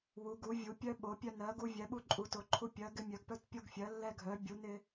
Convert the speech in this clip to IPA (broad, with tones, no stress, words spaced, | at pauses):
wu˩˧ɡu˩˧ vʲu˩˧ pʲœ˧ɓo˩˧pʲœ˧nɜ˩˧ ɡu˧vʲɛ˩˧ɓu˧ǃʼu˩˧ to˩˧ǃʰu˧ pʲɜ˩˧ ɡɪ˧ mʲœ˩˧ɡpœ˧tpʲo˧ɡfʲɜ˩˧ lːɛ˧ɡʱœ˩˧ bʲu˩˧ nɪ˧